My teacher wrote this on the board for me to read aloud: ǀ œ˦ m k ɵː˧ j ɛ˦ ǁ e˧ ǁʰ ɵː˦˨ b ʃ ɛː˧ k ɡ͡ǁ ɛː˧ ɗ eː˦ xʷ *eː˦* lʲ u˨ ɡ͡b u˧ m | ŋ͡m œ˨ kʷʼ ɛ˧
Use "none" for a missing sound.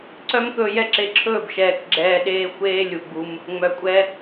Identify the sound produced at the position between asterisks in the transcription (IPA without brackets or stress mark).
eː˦